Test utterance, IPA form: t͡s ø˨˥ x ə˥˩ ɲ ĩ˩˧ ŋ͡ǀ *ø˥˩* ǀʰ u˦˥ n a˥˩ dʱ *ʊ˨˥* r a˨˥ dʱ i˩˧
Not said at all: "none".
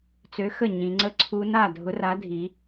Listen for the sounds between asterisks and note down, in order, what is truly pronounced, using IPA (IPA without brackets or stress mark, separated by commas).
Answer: ə˥˩, ʊ˨˥